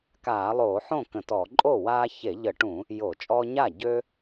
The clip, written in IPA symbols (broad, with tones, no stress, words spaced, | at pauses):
kaː˧˩˧lˠoː˧˩˧ħõ˥˩ kə̃˧˩˧tɔː˧˩˧ ǃʼo˥˩waː˦ çe˧˩˧ʎə˧˩˧ʈũ˧˩˧ | jo˧˩˧t͡ʃʼɔː˦ɲaː˥˩ ɟø˦